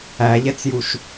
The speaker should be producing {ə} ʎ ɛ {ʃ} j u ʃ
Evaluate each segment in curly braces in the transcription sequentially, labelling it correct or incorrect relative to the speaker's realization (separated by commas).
incorrect, incorrect